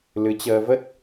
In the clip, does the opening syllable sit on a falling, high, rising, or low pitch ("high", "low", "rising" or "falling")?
rising